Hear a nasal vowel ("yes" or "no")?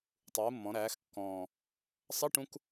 yes